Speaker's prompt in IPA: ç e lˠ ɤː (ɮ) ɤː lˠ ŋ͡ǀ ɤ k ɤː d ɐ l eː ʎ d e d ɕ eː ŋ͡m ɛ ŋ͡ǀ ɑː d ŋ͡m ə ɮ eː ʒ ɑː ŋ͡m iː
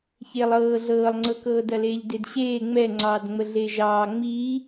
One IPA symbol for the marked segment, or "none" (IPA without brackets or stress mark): ɮ